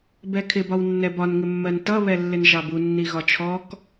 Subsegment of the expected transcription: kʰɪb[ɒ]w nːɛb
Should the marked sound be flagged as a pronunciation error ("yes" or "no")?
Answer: no